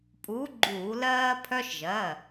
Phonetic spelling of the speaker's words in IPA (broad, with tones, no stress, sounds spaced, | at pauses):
pʼ uː˨˥ ɡ͡ǃ uː˧˩˧ l ɜː˧ pʰ œ˧ ʃ ʒ ɜ˩˧˩